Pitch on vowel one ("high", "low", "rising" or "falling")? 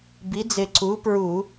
rising